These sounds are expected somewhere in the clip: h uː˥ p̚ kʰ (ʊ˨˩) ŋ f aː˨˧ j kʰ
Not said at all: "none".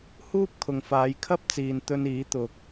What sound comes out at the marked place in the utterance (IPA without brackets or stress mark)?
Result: ʊ˨